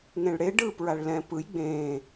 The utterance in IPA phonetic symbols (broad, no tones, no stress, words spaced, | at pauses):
ŋẽɭɽe ɖɯːpɹaɭlɛ̃ pɯj ɡ͡bẽː